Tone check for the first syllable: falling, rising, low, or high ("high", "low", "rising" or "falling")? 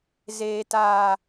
low